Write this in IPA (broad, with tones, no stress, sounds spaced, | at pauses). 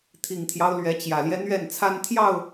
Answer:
t̪ʰ i˨˩ ŋ t̪ʰ j ɑ˦ ʊ̯ l ɥ ɛ˨˦ t͡ɕ j ä˨˩ l j ɛ˦ n̪ ɥ ɛ˥˨ n t͡sʰ a˦ n t̪ʰ j ɑ˥˨ ʊ̯